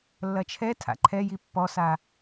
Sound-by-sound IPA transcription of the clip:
lː ɐ t͡ʃʰ ɛ tʰ a̰ ǃʰ ɛ j i pː ɔ s a

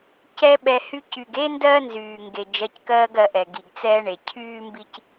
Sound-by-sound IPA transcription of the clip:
c ɛ˦ ɓ ɛ˧ h y˧ c y˨ ɡ e˦ n d ɜː˦ n z yː˨ ŋ ɡ e˨ d͡ʒ ɜ˧ c k ɜː˦ ɡ ɜ˧ ʔ ɛ˨ ɡ i˨ ɡ t͡s ɛː˦ ɳ e˨ cʰ yː˦ m b i˦ c

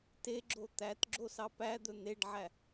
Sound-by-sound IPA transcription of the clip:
t e ɡ͡ǁ o t̪ æ t ɡ͡ǁ o s ɑ p æ d̪ ɵ n̪ e ɖ ʕ æ

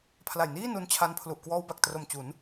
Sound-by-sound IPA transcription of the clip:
pʰ l a˨˩ j n iː˥˩ n u˧ n t͡ɕʰ a˧ n pʰ l u˨˩ ʔ k w ɔː˧ w b a˨˩ k̚ t r o˨˩ m t͡ɕ u˩˦ n

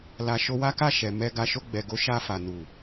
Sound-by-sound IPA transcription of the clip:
l a˨ ʃ o˧ w a˦ k a˦˨ ʃ ɛ˨ m ɛ˨ ɡ a˨ ʃ o˧ ɡ͡b ɛ˨ ɡ o˨˦ ʃ a˧ f a˨ n u˨

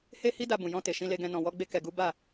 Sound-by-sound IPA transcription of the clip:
h e˦ h i˦ d a˧ b ũ˨ j ɔ̃˧ t e˨ ʃ ĩ˧ l e˧ ɡ ɛ̃˧ n ɔ̃˨ w ɔ˧ ɡ͡b e˧ k ɛ˧ ɡ u˦ b a˦˨

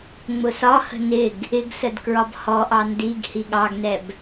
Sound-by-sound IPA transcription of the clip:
ŋ͡m ʊ s ɒ h ə̤ n ɪ ɡ | ɪ ɡ s ə d k ɹ ɒ b h ɔ ʔ ɑ n d i ɡ h i ɠ ɑ ɡ n ɛ b

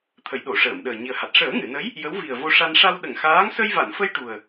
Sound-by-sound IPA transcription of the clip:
t̪ʰ ə˨˩˦ j ɗ o˨˩˨ ʂ əː˨˩˨ m ɗ əː˨˩ ɲ i˨˩ ə̯ h a˨˩ t̚ ʂ əː˨˩˦ ŋ ɨ˨˩˨ n ə˧˥ j | j ə˧˥ w v i˨˩ ə̯ v o˧ ʂ a˧ n ʂ a˧ w ɗ ə˨˩˨ ŋ x aː˧˥ ŋ s ə˧ j v a˨˩˨ n f ə˧ j ʈ u˨˩ ə̯

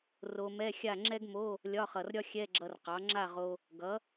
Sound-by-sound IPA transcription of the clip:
r o˧ m ɛ˧˥˧ xʲ a˥˨ ŋ͡ǁ ɛ˥ ɡ m o˧˥˧ | lʲ ɒ˧˥˧ χ ʌ˨˩ r ɾʲ ɒ˥ xʲ ɛ˧˥˧ ɡ͡ǁ ʌ˧ r q ɑ˩˥ ŋ͡ǁ a˥˨ ʁ o˧ | ɡ ʌ˩˥

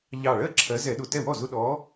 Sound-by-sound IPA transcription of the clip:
ʎ ɑ˧˩ ɭ ɜ˥˩ ǁʰ ɜ˨˦ z ɛ˧˩˧ ɗ ʊ˧˩ t ɛ˥˩ w ɔ˥˩ z ʊ˦ ɗ ɔ˨˦

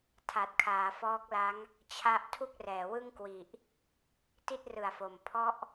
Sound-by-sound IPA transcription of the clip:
tʰ a˨˩ t̚ kʰ aː˩˦ f ɔː˦˥ k̚ l a˦˥ ŋ | t͡ɕʰ a˥˩ ʔ tʰ u˥˩ k̚ r ɛː˩˦ w ɯ˥˩ ŋ k w i˨˩ ʔ | t i˥˩ t̚ r ɯ˨˩ a̯ f o˨˩ m pʰ ɔ˦˥ ʔ

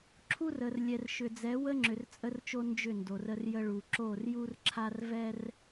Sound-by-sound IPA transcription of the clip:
ǁʰ u˦ r ə˨ r lʲ ɛ˨ r ʃ ʏ˨ d͡z ɛ˨˦ w ə˦ ŋ͡ǁ ʏ˨ r t͡sʼ ə˦ r t͡ʃ o˦ n d͡ʒ ʏ˦˨ n d o˨ r ə˦ r j ə˦ ɭ u˨ ǁ o˦˨ r j u˦ r ǁʰ a˦ r v ɛ˦ r

